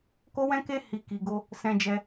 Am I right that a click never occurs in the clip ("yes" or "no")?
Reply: yes